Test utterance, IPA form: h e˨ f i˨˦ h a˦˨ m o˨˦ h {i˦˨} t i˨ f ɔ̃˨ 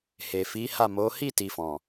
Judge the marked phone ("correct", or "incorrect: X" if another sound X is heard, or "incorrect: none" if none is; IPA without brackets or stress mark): correct